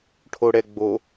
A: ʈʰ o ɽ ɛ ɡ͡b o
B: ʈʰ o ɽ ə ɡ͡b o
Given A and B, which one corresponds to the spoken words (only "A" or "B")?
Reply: A